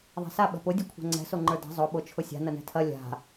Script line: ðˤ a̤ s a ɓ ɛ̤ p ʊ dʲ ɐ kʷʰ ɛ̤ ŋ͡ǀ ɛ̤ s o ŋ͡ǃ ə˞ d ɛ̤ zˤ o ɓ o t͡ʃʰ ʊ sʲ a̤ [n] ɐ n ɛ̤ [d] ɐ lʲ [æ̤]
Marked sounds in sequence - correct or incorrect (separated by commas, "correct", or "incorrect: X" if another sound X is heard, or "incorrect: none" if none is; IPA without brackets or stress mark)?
correct, incorrect: tʰ, incorrect: a̤